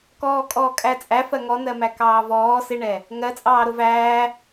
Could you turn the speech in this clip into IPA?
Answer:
kɔːkʼɔːkʼæt͡sʼæ fɜŋɔnɜmæ kɑːvɔː sɪɳɛ | ŋɜt͡sʼɑːɾʊ væː

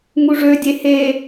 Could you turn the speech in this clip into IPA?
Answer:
ŋuʐødʲe he

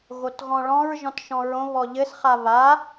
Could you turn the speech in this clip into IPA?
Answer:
ɣotɣɔ̃ɭɔ̃ɹ ʒɔ̃tʃɔ̃ɹõ βɔʎɘs χaβa

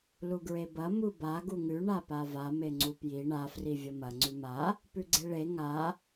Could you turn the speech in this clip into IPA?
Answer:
luɡɹebɐ muba ɡuŋʉ ɳapava meŋ͡ǀupji ɳa frivʲɐmɐ ŋ͡ǀʉma | pʉɡ͡ǀeɭe ŋa

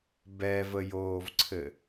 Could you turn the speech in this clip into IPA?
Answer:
bɛvəjoːvǀʰɘ

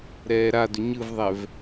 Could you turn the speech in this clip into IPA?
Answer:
ɾɛːɾadʏ ɲɯvðˤɛv

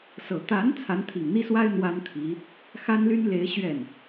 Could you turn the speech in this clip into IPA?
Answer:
sɤ˨˩ t̪a˧˥n t͡sʰa˧˥nt̪ʰi˨˩ŋn̪i˥swa˥ɪ̯ n̪wa˥nt̪ʰi˧˥ | xa˥nly˥nle˧˥ɪ̯ ɕɥɛ˥˩n

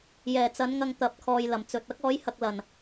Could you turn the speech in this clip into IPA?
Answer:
jɛː˨˩t͡sɐ˨˥nŋɐ˧ŋ t̪ɐ˨˥p̚kʰɔː˨j lɐ˨˩mt͡sɵ˨t̚ ɐ˥k̚ ɔː˨˥jhɐ˨k̚ lɐ˨˩n

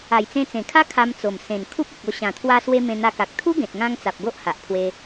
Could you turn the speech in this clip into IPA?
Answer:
a˨˩jt͡sẽ˧t͡sẽ˨˩kʰa˦ kʰa˧mt͡so˨˩m sẽ˨˩n kʰu˦p̚u˨k̚o˧ ɕã˨˩t̪ʰwa˧swe˧ mẽ˧n̪a˧ka˨k̚ t̪ʰu˦ɡẽ˨t̚ŋã˧ŋ t͡sa˨p̚ ɡo˦ʔha˨ʔpʰwe˧

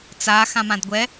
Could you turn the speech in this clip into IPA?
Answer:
t͡sa xãmãdɡʷɛ

